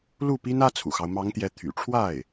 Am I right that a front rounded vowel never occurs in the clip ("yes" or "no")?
no